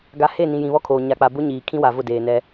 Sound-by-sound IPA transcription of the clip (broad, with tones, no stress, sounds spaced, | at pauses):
ɡ a˦ h e˦˨ n ĩ˨ j ĩ˨ β ɔ˦ kʰ oː˨ ɲ a˨ k͡p a˨ b ʊ˦ ɲ iː˨ kʰ ĩ˦ w a˨ v ʊ˦˨ d eː˨ n ɛ˦